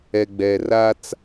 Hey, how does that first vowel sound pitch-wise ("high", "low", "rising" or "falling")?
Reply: low